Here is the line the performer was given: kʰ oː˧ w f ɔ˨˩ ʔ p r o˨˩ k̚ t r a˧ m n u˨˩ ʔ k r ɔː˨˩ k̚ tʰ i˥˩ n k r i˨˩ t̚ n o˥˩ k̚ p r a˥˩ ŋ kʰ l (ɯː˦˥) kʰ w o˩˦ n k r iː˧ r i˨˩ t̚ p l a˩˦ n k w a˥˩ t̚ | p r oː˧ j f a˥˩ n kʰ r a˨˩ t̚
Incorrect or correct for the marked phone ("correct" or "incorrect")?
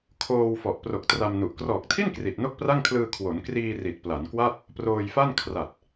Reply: incorrect